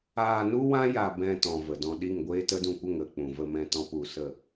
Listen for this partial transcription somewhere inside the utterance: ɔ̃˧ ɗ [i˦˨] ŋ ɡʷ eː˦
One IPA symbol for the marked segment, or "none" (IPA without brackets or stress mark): i˦˨